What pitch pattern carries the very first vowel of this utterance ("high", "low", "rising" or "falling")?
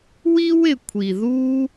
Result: high